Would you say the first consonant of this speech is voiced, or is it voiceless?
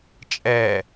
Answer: voiceless